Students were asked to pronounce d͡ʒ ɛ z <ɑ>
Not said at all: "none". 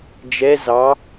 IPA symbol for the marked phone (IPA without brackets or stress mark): ɑ